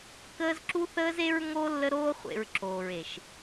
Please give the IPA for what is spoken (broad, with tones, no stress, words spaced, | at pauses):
kəː˦z ǁu˦θəː˦ze˦ɹŋo˦ lːə˦ɾoː˦χʷḛ˨ɹ ǁoː˨ɹe˨ʃ